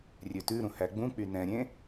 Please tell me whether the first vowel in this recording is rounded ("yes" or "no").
yes